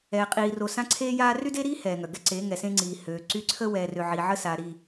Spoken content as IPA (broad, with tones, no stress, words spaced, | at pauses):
ɛː˨qʼiː˨ro˨ sã˦ǀʰeː˦jaː˦ ry˦de˦ɾiː˦ hɛː˨ŋœ˨ ɡɛ˦ǀe˨˦ŋɛ˨sẽ˦ ŋ͡ǀiː˨høː˨ǀy˦ ǀʰə˦wɛː˨rø˨ ʕi˨ʕə˦ saː˨ɾi˦˨